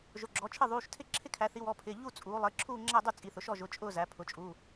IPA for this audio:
ʒ ʊ˩˧˩ ɡ͡ǁ ɔ˩˧ t͡ʃʰ ɪ˥˧ ðˤ uː˩˧˩ ʃ tʰ ɪ˥˧ ǁʰ ɪ˥˧ kʰ æ˩˧ θ i˩˧ w ɔ˩˧˩ pʰ ɪː˩˧˩ ʎ u˥˧ t͡sʼ uː˩˧ lˠ ɪː˩˧˩ ǁʰ uː˥˧ ŋ͡ǁ æ˥˧ dˤ u˥˧ t͡sʼ i˩˧˩ θ ʊ˩˧ ʃ ɔ˥˧ ʒ ʊ˩˧˩ t͡ʃʼ ʊː˥˧ z æ˩˧ pʰ ʊ˩˧ t͡ʃʼ uː˩˧˩

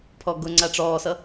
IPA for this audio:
pʰ ɔ ɡ ʊ ŋ͡ǀ a ʈ͡ʂ ɔː s ʌ

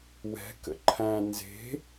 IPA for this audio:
w ɛ̤ k ə̰ ǃʰ æ̃ n z e̤

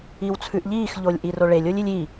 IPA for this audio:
i w t͡sʰ ʉ ʔ ʎ iː x ʎ o lʲ ʔ i r o ɭ e lʲ o lʲ i lʲ i

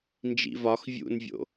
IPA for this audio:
n d͡ʒ ḭ v ɒ x vʲ ṵ n vʲ o̰

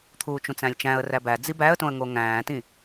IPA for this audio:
t̪ʰ uː t͡ʃ ũ t͡s æ̃ lʲ t͡ʃ æ̃ ə̯ r æ b æ d͡z i b æ ə̯ t õ ə̯ ŋ o ŋ æ̃ː t ĩ

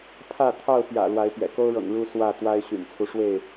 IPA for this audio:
pʰ ä˥˨ t̪ʰ ɑ˥˨ ʊ̯ p j ä̰˨˩ l w a˨˦ ɪ̯ p j ɛ̰˨˩ k o˦ ʊ̯ ɻ ɤ̰˨˩ ŋ ɻ u˦ s w ä˥˨ t̪ w a˦ ɪ̯ ɕ y̰˨˩ n t͡sʰ u˦ ʂ w e˥˨ ɪ̯

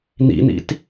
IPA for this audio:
n̪ ḭ n̪ ḭ t

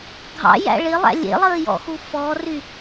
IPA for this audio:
ɡʱ ɑ̰ j æ̰ ɭ ɪ lˠ æ̰ lʲ ḛ lˠ əː j ɔ̰ x u f ɔ r y

